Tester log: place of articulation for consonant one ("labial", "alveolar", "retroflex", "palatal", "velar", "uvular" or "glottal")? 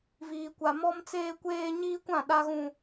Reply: labial